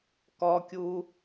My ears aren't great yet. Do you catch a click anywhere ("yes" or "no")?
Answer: no